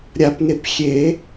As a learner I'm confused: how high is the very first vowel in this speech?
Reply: low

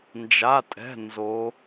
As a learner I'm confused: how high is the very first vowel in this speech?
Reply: low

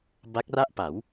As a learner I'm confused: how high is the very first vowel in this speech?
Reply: low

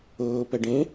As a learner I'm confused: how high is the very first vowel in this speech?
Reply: mid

